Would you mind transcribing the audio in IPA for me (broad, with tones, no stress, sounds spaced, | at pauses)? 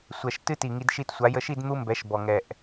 sʷ ɛ˨˩ ʃ t ɨ˦˥ t i˨˩ ŋ i˧ d ʃ i˧ t sʷ a˩˥ j ə˧ ʃ i˥˧ d n̪ u˦˥ m b ɛ˩˥ ʃ b ɔ˨˩ ŋ ɛ˨˩ ʔ